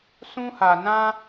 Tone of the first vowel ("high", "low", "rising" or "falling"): high